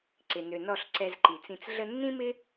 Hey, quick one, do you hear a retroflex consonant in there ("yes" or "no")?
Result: no